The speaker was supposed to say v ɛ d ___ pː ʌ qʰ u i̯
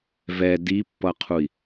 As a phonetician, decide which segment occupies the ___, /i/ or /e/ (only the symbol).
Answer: i